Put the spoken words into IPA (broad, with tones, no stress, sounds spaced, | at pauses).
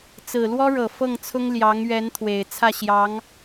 t͡s ɹ̩˨˩ l w ɔ˥ ɻ ɤ˨˩ f ɤ˥˩ ŋ t͡sʰ ʊ˥ ŋ l j ɑ˧˥ ŋ ɥ ɛ˧˥ n t̪ʰ w e˨˩ ɪ̯ t͡sʰ ä˥˩ ɕ j ɑ˧˥ ŋ